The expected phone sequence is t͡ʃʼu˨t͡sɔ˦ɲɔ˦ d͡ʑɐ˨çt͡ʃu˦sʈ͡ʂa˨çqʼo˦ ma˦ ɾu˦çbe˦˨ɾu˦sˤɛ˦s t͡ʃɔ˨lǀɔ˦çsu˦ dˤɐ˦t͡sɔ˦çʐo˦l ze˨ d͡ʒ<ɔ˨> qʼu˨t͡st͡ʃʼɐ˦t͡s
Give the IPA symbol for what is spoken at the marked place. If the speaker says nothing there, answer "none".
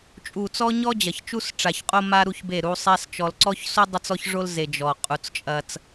ɔ˨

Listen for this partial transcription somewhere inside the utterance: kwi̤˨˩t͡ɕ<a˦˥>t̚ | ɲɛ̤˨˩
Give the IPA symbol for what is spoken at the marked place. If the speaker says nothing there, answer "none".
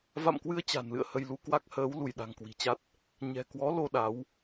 a˦˥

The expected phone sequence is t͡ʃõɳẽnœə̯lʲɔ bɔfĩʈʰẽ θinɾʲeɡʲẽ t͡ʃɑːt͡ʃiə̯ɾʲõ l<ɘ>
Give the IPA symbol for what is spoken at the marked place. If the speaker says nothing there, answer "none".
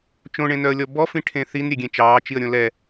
ɛ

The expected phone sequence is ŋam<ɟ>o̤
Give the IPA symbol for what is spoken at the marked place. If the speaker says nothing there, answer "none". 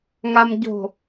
ɟ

